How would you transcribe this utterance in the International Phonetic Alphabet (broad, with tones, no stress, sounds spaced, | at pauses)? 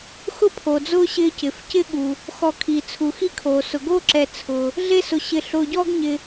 x ʊ˥ pʰ o˩ d͡z ʊː˦ ɕ ɪː˦ c ɪ˩ f c ɪ˥ ɠ u˩ | x ɔ˨ kʰ i˩ t͡sʰ u˩ x i˥ kʰ oː˩ s ʊ˩ ɡ oː˥ ǁ ɛ˨ t͡sʰ ʊː˩ | ɮ e˥ s ʊ˨ ɕ ɪ˨ ɬ ʊː˨ ɟ ɔː˥ ɡ ɲ ɪː˨